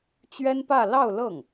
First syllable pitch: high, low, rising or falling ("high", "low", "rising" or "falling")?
high